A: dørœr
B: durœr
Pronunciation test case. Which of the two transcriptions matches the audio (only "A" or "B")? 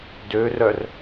A